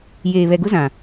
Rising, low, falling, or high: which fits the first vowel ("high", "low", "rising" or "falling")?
low